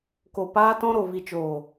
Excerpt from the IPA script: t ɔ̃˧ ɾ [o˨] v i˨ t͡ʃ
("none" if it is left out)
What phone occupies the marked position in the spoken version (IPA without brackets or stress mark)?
o˨